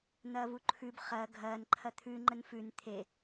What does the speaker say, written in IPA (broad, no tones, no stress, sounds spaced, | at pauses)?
n̪ ɐː v u ǃʰ ʉ b χ ɐ ɡʱ ɐː n ǃʰ ɐ t̪ʰ ʉ ŋ͡ǃ ə n f ʉ n t̪ʰ e